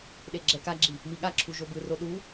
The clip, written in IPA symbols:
ɗ e ɡ͡ǁ ɛ k a ɡ͡ǁ i | m i ɠ a ǁʰ u ʒ o b ɯ r o ɗ u

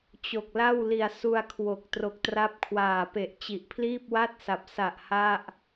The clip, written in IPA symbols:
t͡ɕ o˨˩ k̚ l a˥˩ w l i˨˩ a̯ s u˧ a̯ kʰ w o˨˩ k̚ t r o˨˩ k̚ t r a˦˥ p̚ kʰ w aː˨˩ p e˨˩ ʔ t͡ɕ i˨˩ ʔ pʰ l iː˥˩ p̚ w a˥˩ t̚ s a˨˩ p̚ s a˨˩ ʔ h a˥˩ ʔ

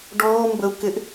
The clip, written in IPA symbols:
ɖ ɔː m b ə u̯ k ɪ ʔ

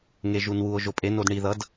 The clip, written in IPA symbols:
ŋ e ʒ u n w u o̯ ʒ o pʼ e n o d ɳ i ð ʌ d

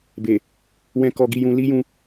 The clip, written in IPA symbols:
b e˨ | w ɛ̃˦ k ɔ˧ ɡ i˧ j ũ˧ l i˦ j ũ˧

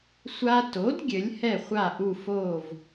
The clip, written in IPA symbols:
sʷ a˧ t o˩˥ d ɡʲ ɘ˩˥ lʲ h ɛ˥˩ χʷ a˥˩ ʔ u˥˩ f oː˥˩ v

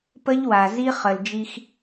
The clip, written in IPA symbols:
p ə˦ ʎ w a˨ z i˦ χ ə˨ l d͡ʒ i˦ x

